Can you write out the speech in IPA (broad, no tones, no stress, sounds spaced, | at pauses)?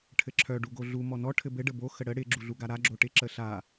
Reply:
ʈʰ ɘ ǁʰ œ ɖ u ɡ o ɮ u m ɔ n ɔ ʈʰ ɘ b ɘ ɖ ə b o x ə ɽ ə ɽ ɪ ɡ͡ǁ u ɮ u ɡ a ɾ a ɡ͡ǁ o ʈ ɪ ǁ ə ɬ a